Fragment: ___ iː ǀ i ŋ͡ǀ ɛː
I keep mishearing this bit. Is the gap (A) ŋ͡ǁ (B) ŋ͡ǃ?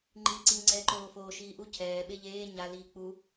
B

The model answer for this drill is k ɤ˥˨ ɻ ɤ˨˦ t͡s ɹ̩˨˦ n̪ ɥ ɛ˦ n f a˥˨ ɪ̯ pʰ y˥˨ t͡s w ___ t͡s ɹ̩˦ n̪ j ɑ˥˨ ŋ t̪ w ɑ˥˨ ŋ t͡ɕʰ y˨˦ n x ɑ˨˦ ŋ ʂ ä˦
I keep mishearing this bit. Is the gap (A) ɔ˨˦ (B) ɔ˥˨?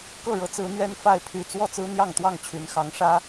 B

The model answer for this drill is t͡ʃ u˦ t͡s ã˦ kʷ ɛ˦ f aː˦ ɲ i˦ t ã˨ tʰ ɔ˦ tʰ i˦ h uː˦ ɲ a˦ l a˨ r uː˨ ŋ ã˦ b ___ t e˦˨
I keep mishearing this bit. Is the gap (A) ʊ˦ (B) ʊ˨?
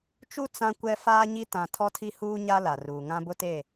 A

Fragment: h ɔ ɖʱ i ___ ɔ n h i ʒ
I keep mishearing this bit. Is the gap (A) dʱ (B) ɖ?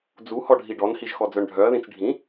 B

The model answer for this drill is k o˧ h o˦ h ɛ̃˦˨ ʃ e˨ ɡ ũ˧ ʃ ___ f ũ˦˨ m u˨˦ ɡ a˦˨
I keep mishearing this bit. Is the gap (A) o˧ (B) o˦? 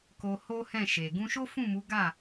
B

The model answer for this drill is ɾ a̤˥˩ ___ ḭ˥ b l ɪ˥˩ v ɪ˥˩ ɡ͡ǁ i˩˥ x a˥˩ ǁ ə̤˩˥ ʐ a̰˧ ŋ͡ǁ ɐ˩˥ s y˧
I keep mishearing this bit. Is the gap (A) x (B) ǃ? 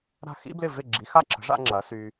A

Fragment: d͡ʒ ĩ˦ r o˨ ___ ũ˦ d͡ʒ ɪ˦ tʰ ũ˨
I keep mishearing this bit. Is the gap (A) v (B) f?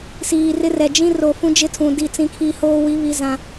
B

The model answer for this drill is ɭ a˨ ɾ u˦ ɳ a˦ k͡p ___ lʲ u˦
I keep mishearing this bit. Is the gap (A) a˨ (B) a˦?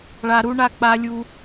B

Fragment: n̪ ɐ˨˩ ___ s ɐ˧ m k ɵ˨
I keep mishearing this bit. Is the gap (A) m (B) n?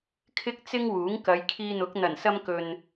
B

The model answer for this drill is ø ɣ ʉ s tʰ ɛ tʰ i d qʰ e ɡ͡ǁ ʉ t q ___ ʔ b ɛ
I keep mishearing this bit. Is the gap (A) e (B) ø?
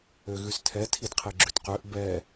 B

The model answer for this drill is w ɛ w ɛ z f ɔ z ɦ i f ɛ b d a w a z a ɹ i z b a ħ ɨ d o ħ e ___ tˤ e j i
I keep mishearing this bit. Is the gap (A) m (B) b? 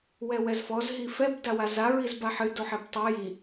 B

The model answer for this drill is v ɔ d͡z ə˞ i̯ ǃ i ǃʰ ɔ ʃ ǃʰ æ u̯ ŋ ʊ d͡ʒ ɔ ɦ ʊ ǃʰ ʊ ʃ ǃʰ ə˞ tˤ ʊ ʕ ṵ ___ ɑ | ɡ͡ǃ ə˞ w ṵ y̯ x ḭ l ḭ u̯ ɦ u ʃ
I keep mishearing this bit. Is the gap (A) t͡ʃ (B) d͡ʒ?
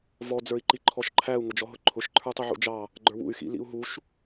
B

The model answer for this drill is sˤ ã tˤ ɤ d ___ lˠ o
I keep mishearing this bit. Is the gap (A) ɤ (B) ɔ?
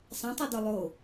B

